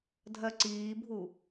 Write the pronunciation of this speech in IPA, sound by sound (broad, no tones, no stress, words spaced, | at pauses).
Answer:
dʱɜǀiːbʱu